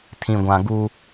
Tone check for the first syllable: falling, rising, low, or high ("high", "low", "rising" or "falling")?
low